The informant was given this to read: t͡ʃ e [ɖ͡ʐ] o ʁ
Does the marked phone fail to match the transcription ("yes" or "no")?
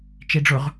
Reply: no